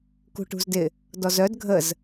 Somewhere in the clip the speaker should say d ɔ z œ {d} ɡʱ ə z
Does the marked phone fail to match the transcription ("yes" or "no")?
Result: no